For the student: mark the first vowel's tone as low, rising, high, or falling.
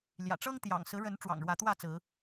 low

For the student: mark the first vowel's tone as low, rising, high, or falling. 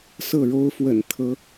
falling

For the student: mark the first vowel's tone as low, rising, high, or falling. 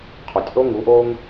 low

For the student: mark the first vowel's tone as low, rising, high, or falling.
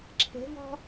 rising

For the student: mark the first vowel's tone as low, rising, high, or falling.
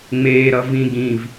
low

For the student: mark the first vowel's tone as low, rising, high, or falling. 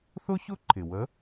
high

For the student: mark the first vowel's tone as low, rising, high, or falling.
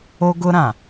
high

